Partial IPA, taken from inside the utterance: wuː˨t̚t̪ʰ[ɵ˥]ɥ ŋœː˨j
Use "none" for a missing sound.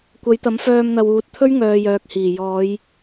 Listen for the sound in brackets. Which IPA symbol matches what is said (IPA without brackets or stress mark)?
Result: ɵ˥